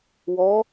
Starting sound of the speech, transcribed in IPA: w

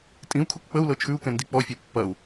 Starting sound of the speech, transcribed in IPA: tʼ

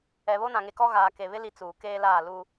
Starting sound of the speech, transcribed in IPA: ɛ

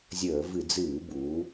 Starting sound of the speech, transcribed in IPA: zʲ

